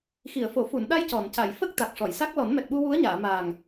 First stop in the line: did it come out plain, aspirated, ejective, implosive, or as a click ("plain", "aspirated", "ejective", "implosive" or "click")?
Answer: implosive